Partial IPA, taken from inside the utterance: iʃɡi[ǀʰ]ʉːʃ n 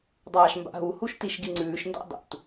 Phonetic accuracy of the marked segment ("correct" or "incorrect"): incorrect